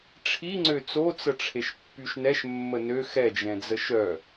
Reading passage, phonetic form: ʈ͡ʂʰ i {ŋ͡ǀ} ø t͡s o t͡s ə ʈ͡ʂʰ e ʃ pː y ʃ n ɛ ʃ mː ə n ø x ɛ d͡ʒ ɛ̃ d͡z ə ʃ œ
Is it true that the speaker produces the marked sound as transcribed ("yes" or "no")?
yes